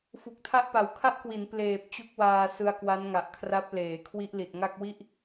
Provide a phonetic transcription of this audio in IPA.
f u˨˩ k̚ tʰ a˥˩ ʔ p a˨˩ w kʰ a˦˥ ʔ k w i˩˦ n p l eː˨˩ p̚ t͡ɕ u˥˩ k̚ w aː˧ s ɯ˧ a̯ k w a˦˥ n ŋ a˨˩ ʔ kʰ r a˦˥ p̚ l eː˩˦ kʰ w i˦˥ ʔ l i˨˩ t̚ ŋ a˥˩ k̚ w i˥˩ ʔ

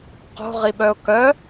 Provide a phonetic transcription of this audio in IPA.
q o̤ ʁ i ɓ œ ʊ̯ k œ

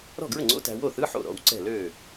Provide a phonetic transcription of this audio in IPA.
ɾ ɔ̤˥˩ ɡ ɹ ə˥˩ ŋ͡ǀ o̰˧˥˧ t æ̤˧ w o˥˩ θ ɯ˧˥˧ ħ o̰˥˩ ɾ ɔ̰˥˩ w ǀ ɛ̤˥˩ l ø˥˩

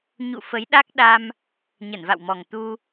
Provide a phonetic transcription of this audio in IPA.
ɲ ṵ˧˨ f ə˨˦ j ɗ a˦˥ k̚ ɗ a˧ m | ɲ ə˧˩ n v a̰˧˨ w m ɔ˨˩ ŋ t̪ u˧

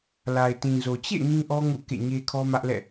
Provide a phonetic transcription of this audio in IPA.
l a˨ ɪ̯ t ĩ˨ z o˨ t͡ɕ ḛ˦˨ ŋ ĩ˦ ʔ ɔ˦ ŋ ṵ˦˨ k ḛ˦˨ ɲ e˦ kʰ ɔ˦ m ä˦ ʔ l ɛ̰˦˨

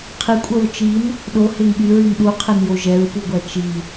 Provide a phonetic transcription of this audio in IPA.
qʰ i kʷʼ œ ɹ t͡ʃ i n | ɗ o h e ŋ ɠ y ɹ y ŋ ɗ u qʰ e n j o ʒ ɛ ɹ p u ɡʷ æ t͡ʃ i

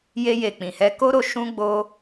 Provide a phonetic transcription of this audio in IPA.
j e˧ j e˨ k͡p ĩ˨ h ɛ˧ k o˦ ɾ o˧ ʃ ũ˧ ɡ͡b o˧

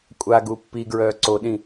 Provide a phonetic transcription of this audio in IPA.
kʷʼ a ɡ u pː i ɡ ɹ œː ǀ o ɗ ĩ

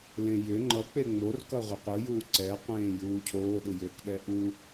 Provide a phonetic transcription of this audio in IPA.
l ẽ j ʏ ŋ͡ǃ ʌ k͡p e ŋ͡m o r k ʌ ʁʷ ɪ qʷ ɯ j uː ǀ ɛ qʷ ẽː j uː cʰ oː ɗ ɯ j ʏː k ɗ ɛ ʔ u

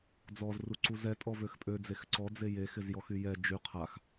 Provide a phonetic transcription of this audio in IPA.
d͡z ɔ z r u ǀ u z ɛ tʼ ɔ v ø x pʼ ø d͡z e x ǀ ɔ d͡z e j e x ɪ z j ɔ x y j ɛ d͡ʒ y qʰ a x

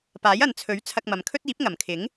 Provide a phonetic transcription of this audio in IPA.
p aː˨˥ j ɐ˨ n t͡sʰ ɵ˨˥ ɥ t͡sʰ ɐ˧ k̚ m ɐ˨˧ m kʰ ɵ˥ t̚ iː˨˥ p̚ ŋ ɐ˨˩ m kʰ ɪ˨˥ ŋ

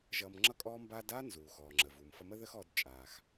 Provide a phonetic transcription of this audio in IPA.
ʒ ʌː˧ m ŋ͡ǁ ʌ˥ kʼ ɔː˥ m b aː˥ d aː˥ n z uː˩ x ɔː˩ ŋ͡ǁ ə˩ v uː˩ m f ʌ˧ m ə˥ ð əː˥ x ɔː˧ d t͡ʃʼ aː˩ x

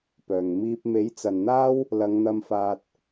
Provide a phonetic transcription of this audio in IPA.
p œː˨˩ ŋ m iː˧ p̚ m e˨˥ j t͡s ɐ˨ n n̪ aː˥ w | l ɐ˨˧ ŋ n̪ ɐ˧ m f aː˧ t̚

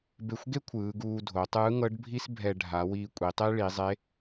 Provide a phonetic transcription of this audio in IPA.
b e˧ xʷ ɡ e˥ kʷʰ ɯː˩˧ ɡ uː˧ dʱ o˩˧ tˤ ɯː˧˥ ŋ ɤ˧˥ ɖ bʱ i˥ s bʱ ɛ˧ ɖʱ a˩˧ w iː˧ kʷʼ i˩˧ tˤ e˥ ɭ i˩˧ zˤ e˧˥

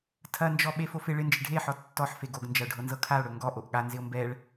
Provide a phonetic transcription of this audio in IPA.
tʰ ɐ n d͡ʒ ɔ ɓ e f o f ɪ ɭ ɪ n d͡ʒ ɪ ɖʱ e ħ ɔ tː ɔ ħ f e ɡ o ɡ n d͡ʒ ɐ o̯ ɖʱ ɤ n z ɤ kʰ a o̯ ɽ ɵ ŋ ɡ ɔ ʔ o ʔ ɠ a n z ɪ o̯ m b ɛ ɭ

